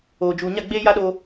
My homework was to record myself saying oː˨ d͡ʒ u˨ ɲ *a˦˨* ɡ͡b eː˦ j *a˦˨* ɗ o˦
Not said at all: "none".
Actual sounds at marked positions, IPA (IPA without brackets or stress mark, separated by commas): a˦˨, a˦